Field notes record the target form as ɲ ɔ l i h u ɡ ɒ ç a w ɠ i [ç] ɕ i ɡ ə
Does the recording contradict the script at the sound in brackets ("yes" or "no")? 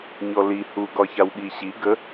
yes